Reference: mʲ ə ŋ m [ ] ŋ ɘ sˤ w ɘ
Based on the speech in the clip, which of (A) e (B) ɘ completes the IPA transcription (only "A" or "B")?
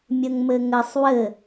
B